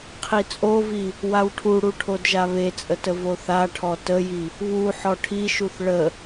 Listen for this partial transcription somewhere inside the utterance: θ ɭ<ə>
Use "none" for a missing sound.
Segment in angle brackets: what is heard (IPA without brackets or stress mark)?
ə